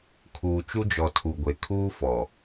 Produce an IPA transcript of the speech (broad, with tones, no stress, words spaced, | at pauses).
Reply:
kʰuː˨t͡ʃu˦d͡ʒɔ˨ tʰu˨ɡʷe˨kʰuː˦fɔ˨